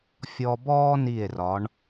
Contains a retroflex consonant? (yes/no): yes